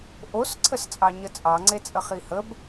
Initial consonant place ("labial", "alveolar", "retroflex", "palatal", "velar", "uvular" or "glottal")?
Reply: glottal